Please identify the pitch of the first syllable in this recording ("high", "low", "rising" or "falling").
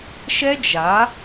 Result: high